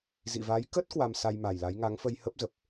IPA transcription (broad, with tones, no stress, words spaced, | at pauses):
zḭ˧˨va˨˦j kə˦˥t̚ kwa˧msa˧jma˨˩jla˨˦j ŋa˨˦ŋfə˧jhə˦˥p̚zə˨˩p̚